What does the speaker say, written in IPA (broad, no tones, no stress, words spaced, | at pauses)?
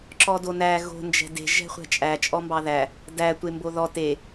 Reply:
ǁɔdonæ ɣo̤ nd͡ʒɛ̤de̤ ʒɛ̤χʷɛ̤t͡ʃʼæ t͡ʃʼɔmbɑðæ | dæ tʷemboðɔ te